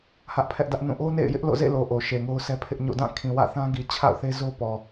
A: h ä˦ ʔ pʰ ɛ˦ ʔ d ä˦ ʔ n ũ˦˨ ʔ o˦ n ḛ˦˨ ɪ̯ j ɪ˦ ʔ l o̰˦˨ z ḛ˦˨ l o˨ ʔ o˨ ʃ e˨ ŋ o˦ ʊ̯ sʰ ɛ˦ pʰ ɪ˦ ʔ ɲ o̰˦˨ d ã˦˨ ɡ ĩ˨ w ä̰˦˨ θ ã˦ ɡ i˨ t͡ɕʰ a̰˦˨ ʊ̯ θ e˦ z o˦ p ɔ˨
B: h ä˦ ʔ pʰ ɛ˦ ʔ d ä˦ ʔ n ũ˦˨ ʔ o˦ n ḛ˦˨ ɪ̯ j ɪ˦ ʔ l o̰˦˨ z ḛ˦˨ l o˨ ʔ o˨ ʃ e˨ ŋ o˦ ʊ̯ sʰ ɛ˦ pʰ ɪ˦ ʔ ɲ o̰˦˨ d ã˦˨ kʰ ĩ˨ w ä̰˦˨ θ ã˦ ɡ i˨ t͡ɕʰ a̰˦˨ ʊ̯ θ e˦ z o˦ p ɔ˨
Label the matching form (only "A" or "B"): B